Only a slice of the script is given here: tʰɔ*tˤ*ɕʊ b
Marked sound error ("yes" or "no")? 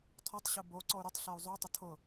no